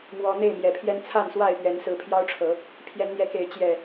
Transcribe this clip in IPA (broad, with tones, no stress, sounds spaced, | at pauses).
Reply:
m w ɔ˨˦ n̪ e˥˨ ɪ̯ m j ɛ˨˩ pʰ j ɛ˦ n t͡sʰ a˥˨ n s w a˥˨ ɪ̯ p ɥ ɛ˨˦ n s ɹ̩˨˦ pʰ j ɑ˦ ʊ̯ ʈ͡ʂʰ ɤ˨˦ | pʰ j ɛ˨˦ n n̪ j ɛ˨˦ k e˨˦ ɪ̯ t͡ɕ j ɛ˨˩